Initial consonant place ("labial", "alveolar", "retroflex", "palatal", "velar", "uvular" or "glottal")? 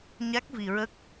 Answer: palatal